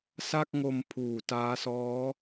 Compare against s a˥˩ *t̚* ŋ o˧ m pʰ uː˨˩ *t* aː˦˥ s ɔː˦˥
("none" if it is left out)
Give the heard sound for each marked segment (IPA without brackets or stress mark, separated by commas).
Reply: k̚, t